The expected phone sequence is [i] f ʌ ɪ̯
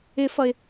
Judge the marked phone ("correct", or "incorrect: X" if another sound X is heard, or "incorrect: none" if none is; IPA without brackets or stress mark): incorrect: ɪ